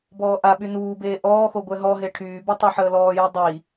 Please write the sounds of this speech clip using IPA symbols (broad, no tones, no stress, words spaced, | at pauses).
bɔːʔaɓy nuːbeː ʔɔːxo ɡʷɛɦɔɦe ʈʰyːbu tˤoħəːlɔːji dˤi